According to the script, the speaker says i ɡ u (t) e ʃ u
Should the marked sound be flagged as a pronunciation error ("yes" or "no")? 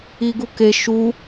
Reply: yes